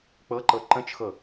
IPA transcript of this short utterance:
k͡pɤǃɤ ǃə̃t͡ʃxɤ

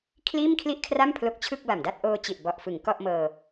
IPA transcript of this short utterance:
kʰliː˥˩mkʰli˥˩ʔkʰra˥˩m pʰlo˦˥k̚t͡ɕʰɯ˥˩k̚ba˨˩mda˥˩t̚ ʔoː˧ t͡ɕi˨˩ʔbɔ˨˩ʔfɯ˩˦ŋ kɔ˥˩ʔmɤː˧

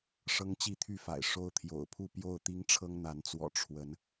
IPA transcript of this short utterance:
ʂɤ˦ŋt͡ɕi˥˨t̪ʰy˥˨fa̰˨˩ɪ̯ ʂo˦ʊ̯t̪ʰjo̰˨˩ʊ̯pʰu˥˨ pjo˥˨ʊ̯t̪i˦ŋʈ͡ʂʰɤ˦ŋn̪a˨˦n t͡swɔ̰˨˩ ʈ͡ʂʰwə˨˦n

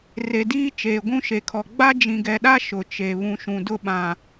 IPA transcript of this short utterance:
re˨diː˦ t͡ʃeː˨ɡʷũ˦ʃe˨kʰɔ˨ ɡ͡ba˦d͡ʒĩ˨ɡɛ˨ɗa˦ ʃʊ˨t͡ʃe˨ βũ˨ʃũ˨ dʊ˦ɓã˨

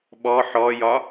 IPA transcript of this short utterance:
ɓɔ ħɔjɒ

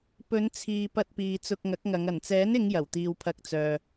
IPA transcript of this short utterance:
pɵ˨˧nt͡sʰiː˨ pɐ˧t̚piː˨ t͡sʊ˧k̚ŋɐ˨˥k̚ŋɐ˨˧ŋ ɐ˨˩nt͡sɛː˨˥nɪ˨˧ŋ jɐ˨˩wt̪iː˨w pʰɐ˧k̚t͡sœː˨

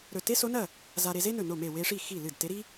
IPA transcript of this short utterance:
ɾɵ˧˩ te˥so˧˥nɐ˥˩ | za˧ ɾe˧ze˥nɵ˧˩ no˥˩me˥˩ we˧ʂi˥˩ xi˥˩lɨ˥˩d te˧˥ɾi˥

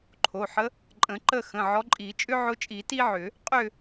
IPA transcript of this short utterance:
ǃʰo˩˧˩ħə˧˥ | ǃʼə̃˨˩˦ǃə˦˨xə̃˩˧˩ ʕɔ˧˥ ǃʼi˨˩˦ t͡ʃʼʏ˥ʕʊ˧˥t͡ʃʼi˨˩˦ ti˥ʕʏ˨˩˦ | qʼʏ˦˨

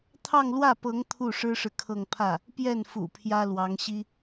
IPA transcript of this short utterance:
t̪ʰɑ˥˧ŋlwä˥˩pɤ˧˥ŋ t̪ʰu˥˩ʂɻ̩˥ʂɻ̩˨ kʰɤ˥˧ŋ pʰä˥˩ | pjɛ˥˩nfṵ˨˩ pʰjä˥lwɑ˧˥ŋɕi˥

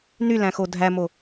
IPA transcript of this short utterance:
nylæ̃xo dʱæmo

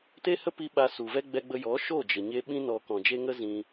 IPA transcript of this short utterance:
te˦hə˦pi˧ ɓa˧su˨vɛ˦ ɡ͡bɛ˧ɡ͡bə˧jɔ˨˦ ʃo˦˨d͡ʒə˨ɲe˧ ɓĩ˧nɔ˨ kɔ̃˨d͡ʒe˧ ŋə˦zĩ˧

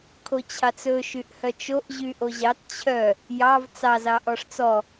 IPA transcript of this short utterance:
kʰot͡ɕʰɑt͡sɵ ʃyʔhœt͡ʃoʔ ʑyʔoʑɑt t͡ɕʰœ | jɑv t͡sɑz ɑʔɔʂt͡sɔ

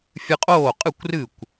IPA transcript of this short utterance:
fʲɨ˧qʼoː˥˩qʼɨ˥˩kʷrɨ˥˩kʷ

